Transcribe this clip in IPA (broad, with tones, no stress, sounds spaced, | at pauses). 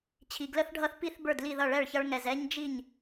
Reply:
t͡ɕʰ i˩ ɡ l ə˦˥ θ ɖʱ ʌ˦˥ θ p i˦˥ θ b ə˞˥˩ d l i˥˩ ð ʌ˥˩ ɭ ɛ˥˩ ɭ ç ʌ˦˥ ɭ ŋ ɛ˩ z ɛ˦˥ ɲ d͡ʒ i˥˩ ɲ